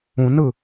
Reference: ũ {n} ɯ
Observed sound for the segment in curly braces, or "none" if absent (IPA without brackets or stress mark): n